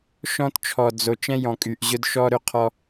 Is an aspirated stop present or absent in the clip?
present